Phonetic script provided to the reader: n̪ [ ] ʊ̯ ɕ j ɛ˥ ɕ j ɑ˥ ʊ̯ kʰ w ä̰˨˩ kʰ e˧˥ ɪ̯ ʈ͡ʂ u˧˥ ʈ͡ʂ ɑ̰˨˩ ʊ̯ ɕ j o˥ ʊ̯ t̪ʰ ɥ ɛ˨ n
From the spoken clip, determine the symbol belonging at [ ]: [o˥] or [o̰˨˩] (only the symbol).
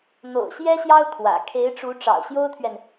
o̰˨˩